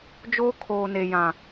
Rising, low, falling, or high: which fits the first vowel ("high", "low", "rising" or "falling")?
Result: high